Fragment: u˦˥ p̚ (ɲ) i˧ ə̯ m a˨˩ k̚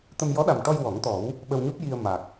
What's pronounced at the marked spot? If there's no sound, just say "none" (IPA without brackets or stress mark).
j